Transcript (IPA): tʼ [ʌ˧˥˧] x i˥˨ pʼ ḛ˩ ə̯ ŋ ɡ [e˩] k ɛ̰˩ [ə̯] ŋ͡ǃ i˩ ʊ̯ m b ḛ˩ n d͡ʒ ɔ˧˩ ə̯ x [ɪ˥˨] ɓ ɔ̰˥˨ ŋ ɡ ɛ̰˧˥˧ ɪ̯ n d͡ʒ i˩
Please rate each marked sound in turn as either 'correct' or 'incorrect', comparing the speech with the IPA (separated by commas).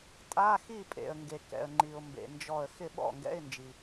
incorrect, correct, correct, correct